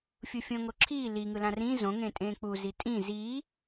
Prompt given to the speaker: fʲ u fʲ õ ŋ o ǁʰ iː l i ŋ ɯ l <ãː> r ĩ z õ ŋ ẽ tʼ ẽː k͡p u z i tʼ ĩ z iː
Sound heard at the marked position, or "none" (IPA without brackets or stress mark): ã